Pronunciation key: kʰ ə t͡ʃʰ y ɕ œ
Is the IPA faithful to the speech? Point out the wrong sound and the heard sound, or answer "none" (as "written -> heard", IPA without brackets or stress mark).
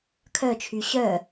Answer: ə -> œ